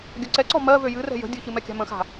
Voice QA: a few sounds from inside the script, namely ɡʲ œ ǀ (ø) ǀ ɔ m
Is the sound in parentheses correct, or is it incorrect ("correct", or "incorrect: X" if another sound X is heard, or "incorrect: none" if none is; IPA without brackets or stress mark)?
incorrect: ɛ